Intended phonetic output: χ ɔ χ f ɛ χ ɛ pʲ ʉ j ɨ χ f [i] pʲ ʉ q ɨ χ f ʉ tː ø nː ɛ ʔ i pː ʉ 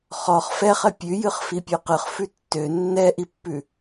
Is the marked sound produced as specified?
yes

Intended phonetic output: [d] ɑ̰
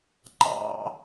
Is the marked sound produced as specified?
no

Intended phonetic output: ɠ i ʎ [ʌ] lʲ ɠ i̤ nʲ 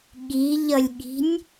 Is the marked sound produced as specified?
yes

